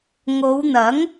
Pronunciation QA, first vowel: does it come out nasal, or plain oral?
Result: oral